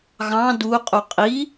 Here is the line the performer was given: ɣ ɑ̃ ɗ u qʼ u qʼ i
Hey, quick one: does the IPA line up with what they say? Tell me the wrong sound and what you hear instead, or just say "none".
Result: ɗ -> d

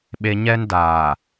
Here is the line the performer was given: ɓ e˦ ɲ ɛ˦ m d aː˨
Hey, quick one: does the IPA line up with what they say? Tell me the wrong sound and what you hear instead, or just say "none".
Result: m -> n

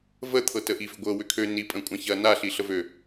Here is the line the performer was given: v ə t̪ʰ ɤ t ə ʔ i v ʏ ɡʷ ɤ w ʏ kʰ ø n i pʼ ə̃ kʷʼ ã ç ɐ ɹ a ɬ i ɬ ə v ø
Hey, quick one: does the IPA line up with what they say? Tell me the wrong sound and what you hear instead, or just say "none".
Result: ɹ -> n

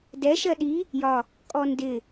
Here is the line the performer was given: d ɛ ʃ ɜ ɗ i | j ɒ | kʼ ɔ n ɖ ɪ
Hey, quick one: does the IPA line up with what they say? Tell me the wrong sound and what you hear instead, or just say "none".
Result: ɖ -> d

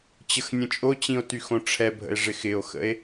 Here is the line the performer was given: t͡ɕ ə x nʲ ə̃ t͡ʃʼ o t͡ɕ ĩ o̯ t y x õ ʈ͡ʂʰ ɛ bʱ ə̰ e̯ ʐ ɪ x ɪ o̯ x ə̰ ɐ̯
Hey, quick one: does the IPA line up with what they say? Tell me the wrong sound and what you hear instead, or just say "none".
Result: ɐ̯ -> e̯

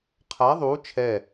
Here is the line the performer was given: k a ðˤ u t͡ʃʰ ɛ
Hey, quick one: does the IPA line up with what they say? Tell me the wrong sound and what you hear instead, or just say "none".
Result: k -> qʰ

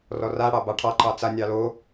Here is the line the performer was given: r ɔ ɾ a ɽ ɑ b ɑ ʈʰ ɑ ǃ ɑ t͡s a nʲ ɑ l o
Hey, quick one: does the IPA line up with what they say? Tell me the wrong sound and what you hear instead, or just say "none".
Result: ɾ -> r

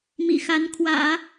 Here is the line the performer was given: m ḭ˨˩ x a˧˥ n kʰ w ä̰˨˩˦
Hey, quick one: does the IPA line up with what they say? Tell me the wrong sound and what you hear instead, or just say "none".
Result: none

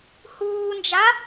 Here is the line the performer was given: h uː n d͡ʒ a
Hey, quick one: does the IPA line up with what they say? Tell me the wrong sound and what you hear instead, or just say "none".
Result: none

